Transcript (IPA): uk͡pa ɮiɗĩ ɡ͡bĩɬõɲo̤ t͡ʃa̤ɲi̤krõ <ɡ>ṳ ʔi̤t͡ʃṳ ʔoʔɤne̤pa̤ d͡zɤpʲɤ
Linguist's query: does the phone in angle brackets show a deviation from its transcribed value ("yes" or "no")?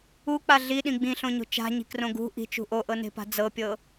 no